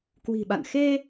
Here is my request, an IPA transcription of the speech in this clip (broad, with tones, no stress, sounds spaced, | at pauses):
k w i̤˨˩ ɓ a̰˧˨ n x e˧